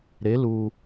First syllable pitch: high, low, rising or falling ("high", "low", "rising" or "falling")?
rising